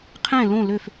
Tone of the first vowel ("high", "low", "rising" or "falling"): falling